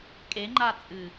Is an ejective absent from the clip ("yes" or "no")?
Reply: no